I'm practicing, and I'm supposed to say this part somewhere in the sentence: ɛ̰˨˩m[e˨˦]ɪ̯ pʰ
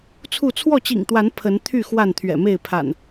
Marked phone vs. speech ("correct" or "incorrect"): incorrect